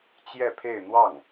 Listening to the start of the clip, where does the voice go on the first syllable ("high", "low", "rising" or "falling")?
falling